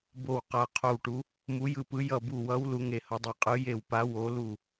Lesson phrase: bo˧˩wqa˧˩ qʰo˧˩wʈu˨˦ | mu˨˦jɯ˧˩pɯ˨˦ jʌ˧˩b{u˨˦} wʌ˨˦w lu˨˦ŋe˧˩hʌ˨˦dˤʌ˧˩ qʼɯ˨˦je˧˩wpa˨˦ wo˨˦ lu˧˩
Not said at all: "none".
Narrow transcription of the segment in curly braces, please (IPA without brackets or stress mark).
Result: u˧˩